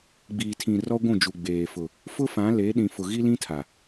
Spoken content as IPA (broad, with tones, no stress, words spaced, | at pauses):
ɡ͡biː˨tʰĩ˨ rɔ˦ɡʷũ˦˨d͡ʒu˨ ɡ͡beː˨fʊ˨ | fʊ˦fã˨˦le˨˦ ɗĩ˨fʊ˨ ɣi˦lĩ˦tʰa˨